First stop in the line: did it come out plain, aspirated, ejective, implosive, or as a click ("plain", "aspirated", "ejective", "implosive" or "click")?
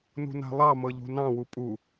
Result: ejective